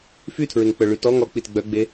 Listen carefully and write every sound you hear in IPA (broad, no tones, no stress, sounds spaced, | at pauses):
f y tʰ ɹ e ŋ k͡p œ ɭ y t ɔ ŋ ɔ k͡p i t ɡ͡b œ ɡ͡b e